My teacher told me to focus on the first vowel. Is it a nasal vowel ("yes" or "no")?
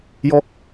no